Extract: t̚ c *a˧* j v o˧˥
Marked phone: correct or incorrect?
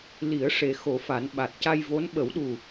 correct